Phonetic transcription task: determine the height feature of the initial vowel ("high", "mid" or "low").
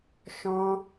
mid